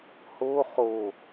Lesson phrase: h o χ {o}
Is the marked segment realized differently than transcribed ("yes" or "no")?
no